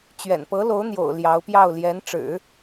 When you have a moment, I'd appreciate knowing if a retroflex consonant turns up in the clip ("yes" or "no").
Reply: yes